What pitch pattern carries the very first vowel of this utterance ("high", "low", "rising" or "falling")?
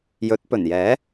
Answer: rising